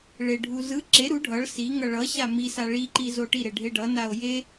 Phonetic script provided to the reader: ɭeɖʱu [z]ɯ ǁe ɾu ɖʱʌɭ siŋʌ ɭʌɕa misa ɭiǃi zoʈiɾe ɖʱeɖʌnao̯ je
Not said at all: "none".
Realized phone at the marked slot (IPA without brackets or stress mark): z